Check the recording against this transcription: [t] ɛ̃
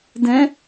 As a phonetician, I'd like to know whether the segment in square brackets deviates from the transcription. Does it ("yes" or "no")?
yes